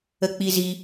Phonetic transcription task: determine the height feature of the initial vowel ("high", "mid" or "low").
mid